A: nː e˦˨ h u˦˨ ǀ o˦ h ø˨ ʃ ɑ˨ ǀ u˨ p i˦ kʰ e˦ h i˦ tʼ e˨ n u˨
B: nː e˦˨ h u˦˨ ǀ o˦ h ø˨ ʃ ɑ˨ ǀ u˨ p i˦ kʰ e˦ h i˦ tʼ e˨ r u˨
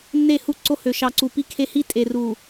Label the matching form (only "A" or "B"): B